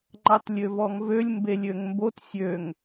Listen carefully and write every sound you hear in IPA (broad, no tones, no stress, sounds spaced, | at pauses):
ŋ͡ǃ ɑ t lʲ ø v ɔ ŋ v ø lʲ m b e lʲ ø ŋ m b o t sʲ ø ŋ